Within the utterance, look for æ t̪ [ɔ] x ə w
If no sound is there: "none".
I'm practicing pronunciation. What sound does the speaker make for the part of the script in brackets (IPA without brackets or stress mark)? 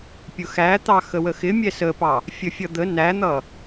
ɑ